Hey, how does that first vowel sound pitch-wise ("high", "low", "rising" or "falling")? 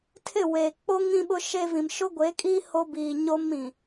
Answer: falling